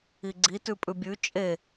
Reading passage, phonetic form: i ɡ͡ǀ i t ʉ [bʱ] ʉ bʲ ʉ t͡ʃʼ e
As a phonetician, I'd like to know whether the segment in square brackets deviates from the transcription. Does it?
yes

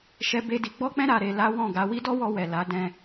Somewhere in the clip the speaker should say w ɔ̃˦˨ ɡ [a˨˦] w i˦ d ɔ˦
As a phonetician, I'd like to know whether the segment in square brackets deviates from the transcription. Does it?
yes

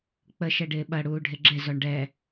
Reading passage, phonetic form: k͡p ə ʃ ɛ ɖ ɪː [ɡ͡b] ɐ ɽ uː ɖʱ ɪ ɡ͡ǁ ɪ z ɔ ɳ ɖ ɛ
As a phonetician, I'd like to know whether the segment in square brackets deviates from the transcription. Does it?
yes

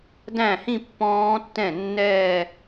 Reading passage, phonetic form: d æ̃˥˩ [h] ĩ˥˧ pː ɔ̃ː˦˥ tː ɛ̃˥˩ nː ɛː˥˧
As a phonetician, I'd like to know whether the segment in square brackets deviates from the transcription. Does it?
no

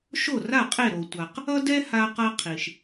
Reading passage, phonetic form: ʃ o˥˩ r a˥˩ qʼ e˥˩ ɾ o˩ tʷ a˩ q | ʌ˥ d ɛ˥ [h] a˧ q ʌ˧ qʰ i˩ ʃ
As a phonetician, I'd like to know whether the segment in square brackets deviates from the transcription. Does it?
no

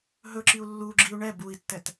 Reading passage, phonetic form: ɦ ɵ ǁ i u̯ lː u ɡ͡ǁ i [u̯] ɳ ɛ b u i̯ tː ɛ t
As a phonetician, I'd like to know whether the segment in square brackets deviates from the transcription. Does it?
no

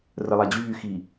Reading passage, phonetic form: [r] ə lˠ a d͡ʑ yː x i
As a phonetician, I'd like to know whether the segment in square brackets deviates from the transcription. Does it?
no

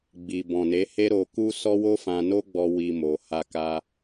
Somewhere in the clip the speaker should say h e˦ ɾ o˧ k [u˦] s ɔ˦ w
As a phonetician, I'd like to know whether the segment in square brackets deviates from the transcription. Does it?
no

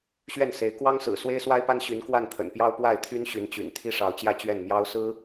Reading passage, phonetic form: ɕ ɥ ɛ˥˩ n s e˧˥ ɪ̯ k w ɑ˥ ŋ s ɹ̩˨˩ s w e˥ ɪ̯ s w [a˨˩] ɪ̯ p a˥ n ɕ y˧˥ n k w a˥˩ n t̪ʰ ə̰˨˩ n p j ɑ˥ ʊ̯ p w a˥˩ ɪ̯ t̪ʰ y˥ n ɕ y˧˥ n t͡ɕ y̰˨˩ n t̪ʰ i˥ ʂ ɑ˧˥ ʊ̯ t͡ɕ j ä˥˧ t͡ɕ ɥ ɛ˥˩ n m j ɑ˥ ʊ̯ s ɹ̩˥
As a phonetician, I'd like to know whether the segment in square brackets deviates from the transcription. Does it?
yes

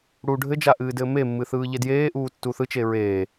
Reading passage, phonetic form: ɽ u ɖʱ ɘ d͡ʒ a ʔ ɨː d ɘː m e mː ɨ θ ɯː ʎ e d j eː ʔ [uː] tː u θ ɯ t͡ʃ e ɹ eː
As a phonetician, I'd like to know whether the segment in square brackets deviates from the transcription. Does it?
no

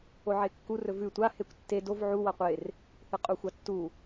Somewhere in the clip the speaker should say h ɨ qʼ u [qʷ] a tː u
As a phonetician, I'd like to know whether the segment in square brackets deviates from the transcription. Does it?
yes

